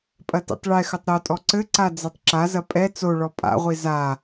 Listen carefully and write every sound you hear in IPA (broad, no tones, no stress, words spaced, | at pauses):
pʼɐtḭtˤɭɛxɘtˤ ɾotʼɔ ǀɘǀa d͡zɛtˤǁazɐ pʼɛ t͡soɭɔ pʼa̰ʁʷi za